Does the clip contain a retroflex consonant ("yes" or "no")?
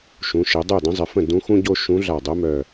no